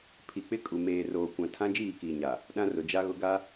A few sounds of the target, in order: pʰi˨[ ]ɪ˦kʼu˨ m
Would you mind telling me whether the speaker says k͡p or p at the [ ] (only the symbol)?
k͡p